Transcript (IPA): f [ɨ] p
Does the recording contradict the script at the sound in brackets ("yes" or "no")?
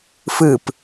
no